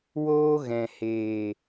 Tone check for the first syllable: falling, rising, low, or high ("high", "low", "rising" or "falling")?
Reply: high